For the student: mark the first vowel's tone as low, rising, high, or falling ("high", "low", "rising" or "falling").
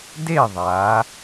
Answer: falling